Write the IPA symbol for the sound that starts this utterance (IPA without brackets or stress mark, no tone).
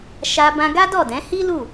ʃ